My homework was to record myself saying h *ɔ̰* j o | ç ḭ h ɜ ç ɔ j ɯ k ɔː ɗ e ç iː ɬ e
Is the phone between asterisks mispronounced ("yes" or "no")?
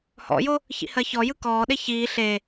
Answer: no